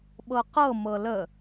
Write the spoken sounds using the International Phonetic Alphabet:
ɓ ɤ q ɤ m ɤ l ə

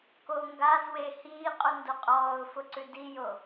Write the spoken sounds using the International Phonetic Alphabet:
k o ŋ ɡ a z w e h iː qʼ u n d o qʼ ɔː ʊ̯ f ʊ ǀ ʉ d i j o

